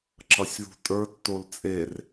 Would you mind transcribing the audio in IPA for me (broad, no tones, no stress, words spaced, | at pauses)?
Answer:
ǁʌsʲðṳtʼə˞ tːolt͡sʼer